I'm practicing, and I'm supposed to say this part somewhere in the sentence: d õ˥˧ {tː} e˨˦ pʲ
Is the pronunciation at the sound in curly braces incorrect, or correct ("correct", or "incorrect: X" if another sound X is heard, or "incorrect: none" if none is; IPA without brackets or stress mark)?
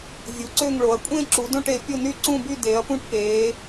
incorrect: ʈ